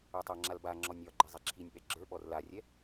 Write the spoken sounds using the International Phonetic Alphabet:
ə˞ tˤ a ŋ͡ǁ a l b a ŋ͡ǁ ɔ nʲ ɒ ɡ͡ǃ i zˤ ɛ ǁʰ i nʲ ɓ ɛ ɡ͡ǁ ə˞ ɓ ɔ r l a rʲ ɛ

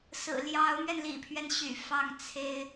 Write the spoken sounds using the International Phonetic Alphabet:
s ɹ̩˨˩ l j ɑ˧˥ ʊ̯ m ɥ ɛ˧ n l ḭ˨˩ pʰ ɥ ɛ˦ n ɕ y̰˨˩ f ɑ˥˩ ŋ t͡sʰ e˥ ɪ̯

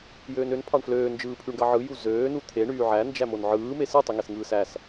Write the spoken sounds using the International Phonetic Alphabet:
j øː n ø n pʰ ɑ ɳ f l øː n d͡ʒ ɯː pʰ y ɳ ɡ ɑ ʕ ɯ j u z øː n u t̪ʰ e ɳ yː ʕ æ n d͡ʒ æ m o n ʕ ɯː m e s ɯ tˤ y ŋ e s ŋ ɯː s æ s

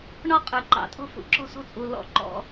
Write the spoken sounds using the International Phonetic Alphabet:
ɳ ɔ˦ qʼ ə˞˩ ǃ ɑ̰˨˦ tʼ ɔ̤˦ f ṵ˩ ǁ ɔ̤˦˨ s ɔ̤˦ t͡sʼ u˩ l ɔ̰˦˨ ǃ ɔ̰˦

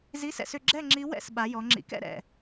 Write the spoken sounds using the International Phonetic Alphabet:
z i˧˥˧ s ɛ̰˥˨ s ʏ˥˨ ɡ͡ǁ ɛ˥˨ ŋ͡ǁ i˧˥ w ɛ̰˥˨ s ɓ a˩˧ j ɔ˩˧ ŋ͡ǁ ḭ˩˥ k ɛ̰˩˥ ɾ ɛ̰˨˩

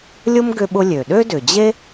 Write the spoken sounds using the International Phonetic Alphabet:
lʲ ʊ˥ m ɡ ʏ˧ ɓ ʊ˧ lʲ ø˩ ɗ ø˥ d ʏ˩ d͡ʑ e˥

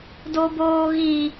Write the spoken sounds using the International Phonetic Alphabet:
d o b oː ɣ i

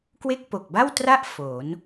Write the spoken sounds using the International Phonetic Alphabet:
k w e˥˩ k̚ p o˨˩ k̚ b a˥˩ w t r a˥˩ ʔ f o˩˦ n

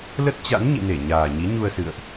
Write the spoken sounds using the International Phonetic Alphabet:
l ə˦˥ t̚ t͡ɕ a̰˧˥ n ɲ ḭ˧˨ n e˧˩ ɲ aː˨˩ ɲ i˨˦ ɲ u˧ ə̯ s ɨ̰˧˨ ə̯ ʔ

